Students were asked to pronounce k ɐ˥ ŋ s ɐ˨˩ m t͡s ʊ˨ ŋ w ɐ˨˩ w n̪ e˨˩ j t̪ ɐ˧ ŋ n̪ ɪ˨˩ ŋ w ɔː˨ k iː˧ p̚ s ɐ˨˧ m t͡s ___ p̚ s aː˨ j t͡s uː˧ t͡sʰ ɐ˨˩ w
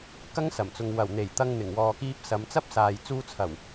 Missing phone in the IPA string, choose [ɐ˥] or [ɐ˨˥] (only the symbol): ɐ˥